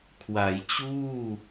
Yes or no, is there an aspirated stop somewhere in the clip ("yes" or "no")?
yes